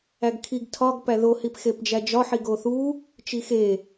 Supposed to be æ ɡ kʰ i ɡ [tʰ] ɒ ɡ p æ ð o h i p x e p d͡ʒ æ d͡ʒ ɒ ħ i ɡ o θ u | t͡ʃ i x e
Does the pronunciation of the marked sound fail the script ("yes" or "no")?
no